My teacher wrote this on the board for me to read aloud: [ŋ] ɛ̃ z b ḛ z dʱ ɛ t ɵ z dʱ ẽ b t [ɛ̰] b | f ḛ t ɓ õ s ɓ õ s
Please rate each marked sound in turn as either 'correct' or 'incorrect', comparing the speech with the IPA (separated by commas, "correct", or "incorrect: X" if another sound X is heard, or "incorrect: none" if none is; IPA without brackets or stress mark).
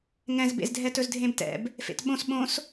correct, correct